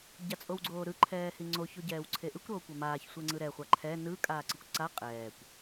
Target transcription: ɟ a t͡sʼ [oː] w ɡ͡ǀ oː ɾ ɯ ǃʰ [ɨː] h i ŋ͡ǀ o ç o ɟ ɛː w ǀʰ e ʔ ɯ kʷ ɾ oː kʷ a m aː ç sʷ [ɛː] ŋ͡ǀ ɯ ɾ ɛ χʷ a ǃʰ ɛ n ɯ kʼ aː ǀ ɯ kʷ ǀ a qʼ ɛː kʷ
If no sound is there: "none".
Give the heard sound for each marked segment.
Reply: o, ɛː, ɛ

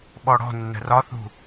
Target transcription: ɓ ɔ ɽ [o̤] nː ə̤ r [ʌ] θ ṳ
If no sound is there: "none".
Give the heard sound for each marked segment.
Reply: ɔ̤, ɒ

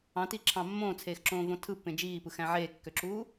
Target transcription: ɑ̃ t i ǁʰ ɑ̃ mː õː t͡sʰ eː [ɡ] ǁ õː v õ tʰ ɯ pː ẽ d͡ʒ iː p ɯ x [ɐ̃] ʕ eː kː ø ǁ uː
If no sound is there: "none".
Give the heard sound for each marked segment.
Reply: x, æ̃

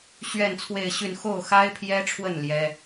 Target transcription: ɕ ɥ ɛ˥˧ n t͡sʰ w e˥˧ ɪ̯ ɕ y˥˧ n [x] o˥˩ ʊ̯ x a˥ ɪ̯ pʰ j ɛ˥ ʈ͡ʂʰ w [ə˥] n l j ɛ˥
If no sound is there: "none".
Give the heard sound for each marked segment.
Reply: x, ə˥˩

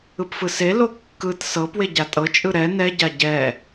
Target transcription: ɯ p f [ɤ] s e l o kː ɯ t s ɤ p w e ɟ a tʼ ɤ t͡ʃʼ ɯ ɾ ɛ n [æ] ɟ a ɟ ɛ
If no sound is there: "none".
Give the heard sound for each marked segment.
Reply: ɯ, ɛ

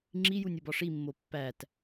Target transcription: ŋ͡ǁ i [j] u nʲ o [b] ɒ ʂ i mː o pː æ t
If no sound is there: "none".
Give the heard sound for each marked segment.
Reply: j, b

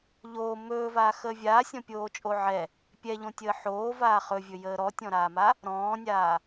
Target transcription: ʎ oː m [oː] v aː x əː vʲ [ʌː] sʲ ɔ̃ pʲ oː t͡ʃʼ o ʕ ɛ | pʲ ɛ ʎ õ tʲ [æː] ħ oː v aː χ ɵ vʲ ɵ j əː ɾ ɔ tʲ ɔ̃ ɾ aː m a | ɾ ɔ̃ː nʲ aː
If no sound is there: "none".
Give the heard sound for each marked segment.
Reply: ɵː, aː, əː

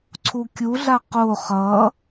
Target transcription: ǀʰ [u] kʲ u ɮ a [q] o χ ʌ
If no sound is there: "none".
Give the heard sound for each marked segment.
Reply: u, q

